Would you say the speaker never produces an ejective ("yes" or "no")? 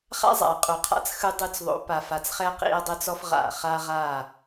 no